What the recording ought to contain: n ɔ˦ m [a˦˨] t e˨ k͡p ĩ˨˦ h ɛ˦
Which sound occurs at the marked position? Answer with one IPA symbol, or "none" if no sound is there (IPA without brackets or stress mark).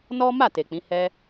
a˦˨